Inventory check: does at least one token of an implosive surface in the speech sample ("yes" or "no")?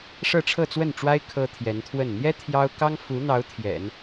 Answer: no